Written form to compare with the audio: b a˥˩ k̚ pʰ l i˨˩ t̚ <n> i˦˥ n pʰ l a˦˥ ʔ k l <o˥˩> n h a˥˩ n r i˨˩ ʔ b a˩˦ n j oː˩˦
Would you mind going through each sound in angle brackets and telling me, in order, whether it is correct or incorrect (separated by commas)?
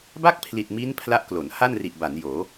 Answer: incorrect, incorrect